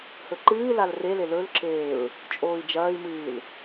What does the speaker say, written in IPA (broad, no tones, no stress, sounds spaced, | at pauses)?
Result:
h ɵ ǃ ɨː l a l r e l e l ɵ l ǁ eː ɹ | t͡ʃʼ oː i̯ d͡ʒ ɐː i̯ m ɨː l